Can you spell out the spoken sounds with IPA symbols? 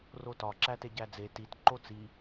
r o t ɒ ǁ æ t e ɟ æ d͡z e t i t ǃ o t͡s i

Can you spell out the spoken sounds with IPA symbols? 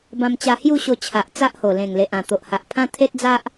b ã˧ m t͡ɕ a˧ h j u˥˧ ɕ o˧ t͡ɕʰ a˨ ʔ t͡s a˦ ʔ h o˨˩ l ẽ˨˩ ŋ l e˨ ʔ ã˨˩ t̪ o˨ ʔ h a˨ ʔ pʰ ã˦ t̪ʰ e˦ t̚ d͡z a˦ ʔ

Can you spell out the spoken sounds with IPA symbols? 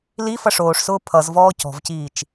l i f ʌ ʂ oː ʂ s ʊː pʰ ʌ z v ɔː c ɔ̤ v c iː t͡ʃ

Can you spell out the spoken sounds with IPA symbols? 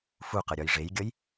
f u q ʌ ɾʲ ɒ j ʐ e j ɡʲ ʌ j

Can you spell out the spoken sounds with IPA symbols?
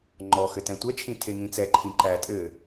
ŋ͡ǃ ɔ x ɘ t ɛ̃ tʷ ɛ t͡ʃʰ ĩ tʰ e ŋ ĩ t͡s ɛ ǃʰ ĩ ǃ æ tʼ ɘ

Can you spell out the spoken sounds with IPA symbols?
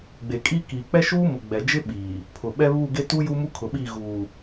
ɡ͡b e˨ kʼ i˦ k iː˨ k͡p ɛ˦ ʃ uː˦ m ʊ˨ ɡ͡b ɛ˨ d͡ʒ ɪ˦ ɓ iː˨ | pʰ ʊ˨ ɓ ɛ˦ β u˦˨ ɡ e˦ t u˦ j u˦ m u˦ kʰ ʊ˨ ɓ i˦˨ ɣ uː˨

